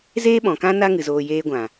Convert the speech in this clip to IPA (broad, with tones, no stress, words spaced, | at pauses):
zeː˦ɓɔ̃˨kã˦ na˦ŋɨ˨ zoː˧jeː˦ɡʷã˨